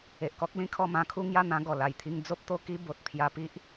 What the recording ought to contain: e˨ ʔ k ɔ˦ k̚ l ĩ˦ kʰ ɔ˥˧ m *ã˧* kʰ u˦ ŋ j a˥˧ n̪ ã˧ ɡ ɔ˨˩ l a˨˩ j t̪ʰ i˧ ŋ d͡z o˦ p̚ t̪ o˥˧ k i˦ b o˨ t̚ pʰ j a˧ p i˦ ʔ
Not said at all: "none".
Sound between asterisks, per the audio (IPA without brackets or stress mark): ã˧